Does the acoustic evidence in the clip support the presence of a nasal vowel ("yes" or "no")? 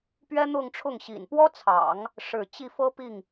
no